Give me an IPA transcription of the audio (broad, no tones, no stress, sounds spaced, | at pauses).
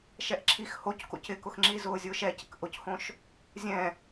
ʃ ɛ ʔ ǁʰ i x h o c k o̰ c ɪ k ʊ x ŋ͡ǁ i z ʊː zʲ ʊː ʃ ɛ c ɪ k ʔ ʊ c h õ ʃ | zʲ ɛ̃